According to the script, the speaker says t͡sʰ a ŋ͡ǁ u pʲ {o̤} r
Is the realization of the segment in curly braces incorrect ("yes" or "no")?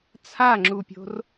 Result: no